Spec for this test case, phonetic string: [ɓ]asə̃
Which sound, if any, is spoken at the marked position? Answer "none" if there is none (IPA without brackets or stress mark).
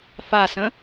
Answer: f